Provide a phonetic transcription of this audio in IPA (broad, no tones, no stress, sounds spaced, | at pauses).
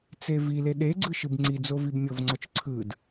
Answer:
t͡s e v i l e ɗ e ɡ͡ǀ ɯ ʃ ɯ b ŋ͡ǀ i d͡z o v i b mʲ ɤ v ŋ͡ǀ ɔ t͡ʃ ǀʰ ɯ d